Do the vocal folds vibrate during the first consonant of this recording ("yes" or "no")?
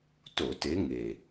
no